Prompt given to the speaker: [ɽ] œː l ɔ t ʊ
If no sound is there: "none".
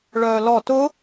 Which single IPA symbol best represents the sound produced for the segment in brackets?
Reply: ɭ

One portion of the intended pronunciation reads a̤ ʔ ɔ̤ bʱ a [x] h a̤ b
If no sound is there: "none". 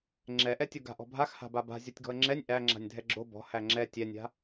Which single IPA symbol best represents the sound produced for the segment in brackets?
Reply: x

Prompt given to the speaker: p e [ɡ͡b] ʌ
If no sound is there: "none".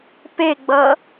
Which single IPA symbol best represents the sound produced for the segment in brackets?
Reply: ɡ͡b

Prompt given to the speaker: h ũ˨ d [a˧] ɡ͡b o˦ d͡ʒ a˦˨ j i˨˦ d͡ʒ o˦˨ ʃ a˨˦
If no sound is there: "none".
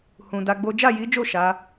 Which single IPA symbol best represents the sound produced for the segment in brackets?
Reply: a˧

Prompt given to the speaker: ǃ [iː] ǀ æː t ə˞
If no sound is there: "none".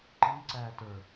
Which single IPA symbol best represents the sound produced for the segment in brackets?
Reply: iː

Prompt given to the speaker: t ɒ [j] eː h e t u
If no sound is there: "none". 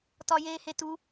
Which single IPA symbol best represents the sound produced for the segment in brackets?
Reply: j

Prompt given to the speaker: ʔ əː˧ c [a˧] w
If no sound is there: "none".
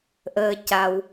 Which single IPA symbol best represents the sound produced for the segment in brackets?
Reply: a˧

